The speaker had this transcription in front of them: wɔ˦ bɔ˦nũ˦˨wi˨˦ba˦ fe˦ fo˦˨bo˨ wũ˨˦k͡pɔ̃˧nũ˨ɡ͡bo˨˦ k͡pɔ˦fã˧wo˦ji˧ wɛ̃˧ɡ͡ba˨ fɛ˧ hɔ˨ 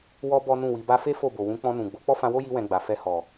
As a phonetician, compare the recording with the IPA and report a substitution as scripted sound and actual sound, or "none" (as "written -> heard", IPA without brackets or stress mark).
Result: none